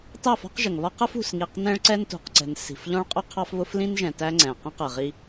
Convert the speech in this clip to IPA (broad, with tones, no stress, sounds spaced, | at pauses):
t ɑ˦˨ f ɔ̤˦ q ʒ ə˨ ŋ β ɒ˦ q ə˦ f ṳ˨ s ŋ i˨ q n ɛ̃˦ ɭ ǀ ɛ˦ n t ṳ˨ q ǀ ɛ̤˨ n s i̤˨ f ʎ ɔ̃˦ ɭ qʼ ʊ˦ qʰ ɑ˦ f β ʊ˦ f l ĩ˦ n ʒ ɛ̃˨ t æ˦ ŋ͡ǀ ɛ̃˨ q ĩ˦ q ɜ˨ ʁ i˦